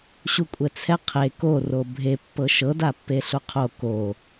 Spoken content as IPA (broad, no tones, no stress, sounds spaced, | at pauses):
ɕ u kʷʼ ɛ t͡sʰ ɛ qʰ e k o r o bʱ e pː ɤ ʃ ɤ d a pː e ɬ u qʰ o k o